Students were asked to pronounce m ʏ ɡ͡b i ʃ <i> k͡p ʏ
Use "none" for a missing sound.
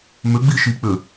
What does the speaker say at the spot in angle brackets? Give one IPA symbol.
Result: i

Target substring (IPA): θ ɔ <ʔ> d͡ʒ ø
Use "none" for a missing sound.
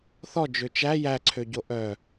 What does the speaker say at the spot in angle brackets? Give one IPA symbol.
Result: none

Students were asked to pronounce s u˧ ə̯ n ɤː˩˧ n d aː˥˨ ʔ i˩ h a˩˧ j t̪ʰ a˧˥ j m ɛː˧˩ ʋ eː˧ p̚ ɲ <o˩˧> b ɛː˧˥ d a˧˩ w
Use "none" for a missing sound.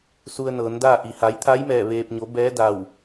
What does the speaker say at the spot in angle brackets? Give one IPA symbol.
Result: o˩˧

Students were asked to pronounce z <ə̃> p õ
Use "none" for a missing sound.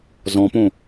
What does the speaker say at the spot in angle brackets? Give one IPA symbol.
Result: ɔ̃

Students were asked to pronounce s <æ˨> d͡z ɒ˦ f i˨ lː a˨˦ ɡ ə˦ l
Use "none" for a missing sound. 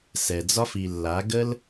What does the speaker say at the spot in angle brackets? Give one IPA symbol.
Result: ɛ˨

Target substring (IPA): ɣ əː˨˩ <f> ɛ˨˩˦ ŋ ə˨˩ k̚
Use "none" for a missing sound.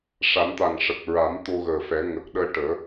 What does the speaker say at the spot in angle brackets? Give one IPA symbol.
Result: f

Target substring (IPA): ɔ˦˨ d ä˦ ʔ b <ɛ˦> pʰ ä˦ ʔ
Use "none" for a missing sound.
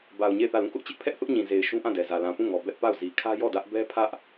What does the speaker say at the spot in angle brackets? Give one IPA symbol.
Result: ɛ˦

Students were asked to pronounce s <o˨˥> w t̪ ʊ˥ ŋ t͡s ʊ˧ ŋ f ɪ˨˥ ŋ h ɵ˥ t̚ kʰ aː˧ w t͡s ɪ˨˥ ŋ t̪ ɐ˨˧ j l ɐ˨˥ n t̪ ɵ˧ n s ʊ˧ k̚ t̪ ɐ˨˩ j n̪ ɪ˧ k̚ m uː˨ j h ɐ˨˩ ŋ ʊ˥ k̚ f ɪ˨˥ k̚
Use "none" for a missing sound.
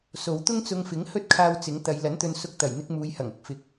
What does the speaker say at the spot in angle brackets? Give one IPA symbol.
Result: o˨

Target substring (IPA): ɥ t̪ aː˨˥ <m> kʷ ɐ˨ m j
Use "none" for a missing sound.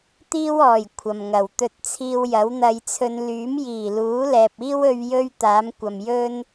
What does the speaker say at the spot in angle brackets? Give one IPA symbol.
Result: m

